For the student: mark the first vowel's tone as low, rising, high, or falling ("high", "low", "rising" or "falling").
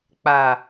low